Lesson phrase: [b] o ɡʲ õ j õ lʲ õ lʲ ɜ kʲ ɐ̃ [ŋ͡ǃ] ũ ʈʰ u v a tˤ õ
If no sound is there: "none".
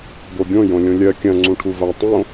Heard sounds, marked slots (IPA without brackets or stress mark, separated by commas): b, ŋ͡ǀ